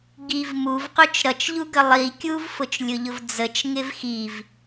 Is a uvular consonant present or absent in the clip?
present